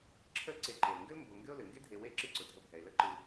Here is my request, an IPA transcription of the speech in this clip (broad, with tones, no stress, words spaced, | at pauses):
ǁʰə˦lǀe˨ǃe˩lŋɡɘ˥l mbo˨ ŋɡɘ˦ʊ̯lɘ˩ ŋɡe˥dʱe˨we˦ ǁɨ˦ǀʊ˩ dʱə˨bʱɛ˩ɪ̯lə˦ ǃɨ˨